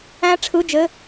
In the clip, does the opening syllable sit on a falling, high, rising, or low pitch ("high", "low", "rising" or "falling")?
rising